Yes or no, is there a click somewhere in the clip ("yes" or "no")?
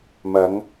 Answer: no